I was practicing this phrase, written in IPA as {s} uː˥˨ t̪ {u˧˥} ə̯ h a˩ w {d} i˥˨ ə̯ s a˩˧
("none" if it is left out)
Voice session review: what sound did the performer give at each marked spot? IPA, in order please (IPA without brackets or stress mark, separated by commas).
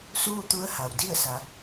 s, u˧˥, d